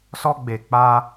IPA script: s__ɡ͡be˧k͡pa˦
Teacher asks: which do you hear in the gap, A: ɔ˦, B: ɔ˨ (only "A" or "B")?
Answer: A